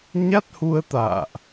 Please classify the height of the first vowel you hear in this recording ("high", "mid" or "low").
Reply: low